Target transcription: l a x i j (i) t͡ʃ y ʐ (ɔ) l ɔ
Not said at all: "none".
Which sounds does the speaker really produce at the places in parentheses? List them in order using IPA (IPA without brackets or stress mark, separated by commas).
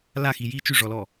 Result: i, ɔ